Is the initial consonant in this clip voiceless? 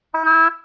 no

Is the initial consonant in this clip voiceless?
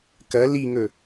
yes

